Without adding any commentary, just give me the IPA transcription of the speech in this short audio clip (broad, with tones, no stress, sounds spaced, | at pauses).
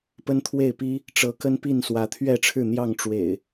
p ə˦ n t̪ʰ w e˥˨ ɪ̯ p i˦ | ʈ͡ʂ ɤ˨˦ k ə˦ n p i˥˨ n s w ä˨˦ t̪ʰ ɥ ɛ˥˨ ʈ͡ʂʰ ɻ̩˥˨ n̪ j ɑ˥˨ ŋ ʈ͡ʂ w ḛ˨˩ ɪ̯